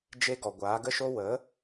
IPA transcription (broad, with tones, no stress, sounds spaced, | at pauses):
d͡ʒ e˧ ɡ ɔ˨ ɡʷ aː˨˦ ɡ ə˦ ʃ o˦ w ə˨˦